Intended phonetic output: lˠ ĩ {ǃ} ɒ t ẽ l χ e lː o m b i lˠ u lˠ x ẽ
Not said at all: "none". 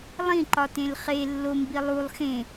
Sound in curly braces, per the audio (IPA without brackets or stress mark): ǃ